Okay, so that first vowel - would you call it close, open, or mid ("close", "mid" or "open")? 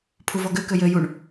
close